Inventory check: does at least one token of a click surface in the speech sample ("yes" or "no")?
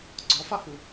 yes